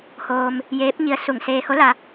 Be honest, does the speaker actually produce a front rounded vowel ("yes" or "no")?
no